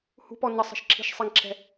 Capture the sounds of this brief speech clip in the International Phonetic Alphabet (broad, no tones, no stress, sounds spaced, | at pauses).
h ṳ p ɔ n ə sˤ ə̤ ʃ ǁʰ i̤ ʃ sˤ i ŋ ǁʰ ɛ̤